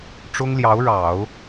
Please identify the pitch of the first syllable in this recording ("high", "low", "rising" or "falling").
high